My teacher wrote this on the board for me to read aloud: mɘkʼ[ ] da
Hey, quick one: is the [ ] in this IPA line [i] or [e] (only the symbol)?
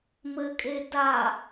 e